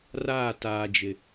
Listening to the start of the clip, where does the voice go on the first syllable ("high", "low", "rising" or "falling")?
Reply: falling